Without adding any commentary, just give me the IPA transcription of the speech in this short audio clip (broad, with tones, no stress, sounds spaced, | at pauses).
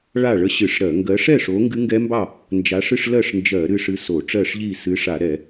ɭ a˥˨ ɭ ə˦˥ ɕ ɨ˧˩˧ ʂ ɾ ɜ˧˩˧ ŋ ɡ ɜ˨˦ ʂ ɛ˥˨ ʂ o˨˦ ŋ ɡ ɨ˦˥ ŋ ɡ ɛ˦˥ m b ɑ˥˨ | n d͡ʒ a˨˦ ʂ ɨ˥˨ ʂ l ɜ˥˨ ʂ n d͡ʒ ɜ˧˩˧ ɾ ɨ˥˨ ʂ ɨ˦˥ s o˧˩˧ ʈ͡ʂ ɜ˥˨ ʂ ʎ i˥˨ s ɨ˨˦ ʂ a˧˩˧ ɾ ɛ˧˩˧